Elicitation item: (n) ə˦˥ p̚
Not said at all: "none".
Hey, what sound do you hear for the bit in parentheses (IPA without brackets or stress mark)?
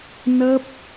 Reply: n